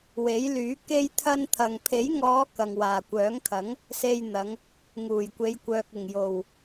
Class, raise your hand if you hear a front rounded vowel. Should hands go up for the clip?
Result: yes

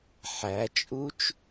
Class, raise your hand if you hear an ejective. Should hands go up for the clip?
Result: yes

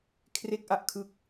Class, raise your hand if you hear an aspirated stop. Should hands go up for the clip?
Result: yes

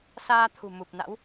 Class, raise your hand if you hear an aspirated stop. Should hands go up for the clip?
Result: yes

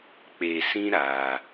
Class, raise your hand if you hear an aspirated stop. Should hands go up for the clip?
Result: no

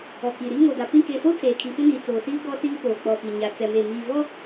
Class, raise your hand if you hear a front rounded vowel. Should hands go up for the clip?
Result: no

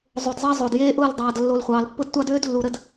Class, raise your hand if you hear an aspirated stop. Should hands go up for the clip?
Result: no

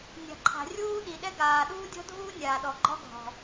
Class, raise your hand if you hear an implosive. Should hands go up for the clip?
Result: yes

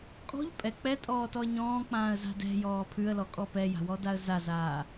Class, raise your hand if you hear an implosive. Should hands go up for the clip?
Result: no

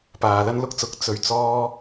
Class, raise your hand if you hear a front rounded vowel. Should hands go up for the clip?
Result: no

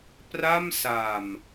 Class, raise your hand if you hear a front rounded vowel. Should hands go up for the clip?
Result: no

